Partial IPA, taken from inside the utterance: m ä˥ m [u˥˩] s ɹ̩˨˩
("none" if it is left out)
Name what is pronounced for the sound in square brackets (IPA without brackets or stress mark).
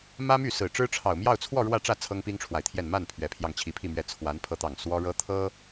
y˥˩